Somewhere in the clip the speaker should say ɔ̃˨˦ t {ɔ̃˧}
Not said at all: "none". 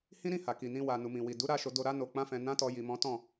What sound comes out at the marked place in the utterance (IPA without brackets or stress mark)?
ɔ̃˦˨